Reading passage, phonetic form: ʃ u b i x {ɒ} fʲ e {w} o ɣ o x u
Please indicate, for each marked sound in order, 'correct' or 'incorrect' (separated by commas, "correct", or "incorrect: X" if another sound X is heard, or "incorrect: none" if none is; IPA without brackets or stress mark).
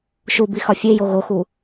correct, incorrect: j